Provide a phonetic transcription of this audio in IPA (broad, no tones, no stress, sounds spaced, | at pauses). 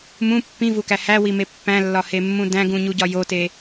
m ũ pː ĩ v u k æ h æ w i m e pː æ̃ lː ɒ h e mː ũ d æ̃ ɡ ũ ɲ u ɟ ɒ j o t e